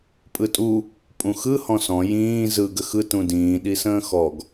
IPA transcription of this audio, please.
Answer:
pʼ ɯ tʼ u | pʼ ũ x ɯ h ɔ̃ s ɔ̃ j ĩː z ɯ ɡ ə x ɯ t ũ d ĩː ɗ i s ə̃ː x ɔ ɡ

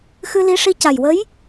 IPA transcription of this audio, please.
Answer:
x ɨ˧ l i˧˥ ʂ i˧ c a˨˩ j w ə˧˥ j

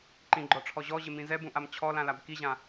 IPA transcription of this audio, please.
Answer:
ǃ ĩ ɡ͡ǃ ɔ ʈ͡ʂʰ ɔ ʑ ɔ ʑ ɪ m ĩ z ɛ b ũ ʔ a m t͡ɕʰ ɔ l ã l a b k i ʑ ã

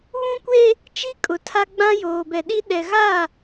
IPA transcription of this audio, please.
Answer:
β ũ˦ kʷ eː˦ | t͡ʃ i˦ kʼ ʊ˨˦ tʰ a˦ ɡ͡b ã˦ j oː˨ b ɛ˨ ɗ i˦ ɗ ɛ˨ ɣ aː˦˨

